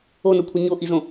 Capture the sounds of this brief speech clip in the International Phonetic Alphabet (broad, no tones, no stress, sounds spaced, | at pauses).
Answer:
o n o kʷʰ e ɲ o ʔ i z õ